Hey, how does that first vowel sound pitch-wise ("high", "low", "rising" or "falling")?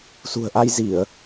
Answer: low